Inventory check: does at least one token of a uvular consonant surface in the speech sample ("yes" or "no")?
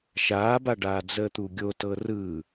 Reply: no